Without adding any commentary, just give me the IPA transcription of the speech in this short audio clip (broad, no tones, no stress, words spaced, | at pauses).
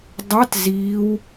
dˤɑt ziːw